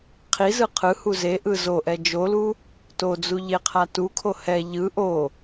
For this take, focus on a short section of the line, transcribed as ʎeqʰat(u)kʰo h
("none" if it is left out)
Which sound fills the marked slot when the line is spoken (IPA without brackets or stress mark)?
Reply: u